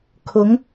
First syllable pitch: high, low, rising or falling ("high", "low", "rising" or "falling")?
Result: rising